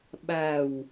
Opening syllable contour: low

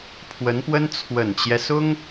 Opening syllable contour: rising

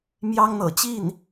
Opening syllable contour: high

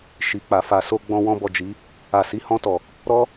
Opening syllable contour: low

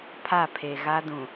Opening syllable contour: falling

